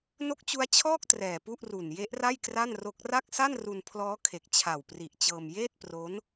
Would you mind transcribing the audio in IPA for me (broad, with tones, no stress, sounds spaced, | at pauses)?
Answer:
n o˦˥ k̚ t͡ɕ u˦˥ a̯ t͡ɕʰ ɔː˥˩ k̚ t r ɛː˨˩ p u˥˩ ʔ r u˨˩ n j e˦˥ ʔ r a˥˩ j k r a˥˩ n r o˦˥ k̚ r a˥˩ k̚ s a˥˩ n r u˧ n pʰ l ɔː˦˥ kʰ e˨˩ k̚ t͡ɕʰ a˨˩ w p r i˨˩ ʔ t͡ɕ ɤː˧ m j eː˥˩ t̚ p r o˦˥ n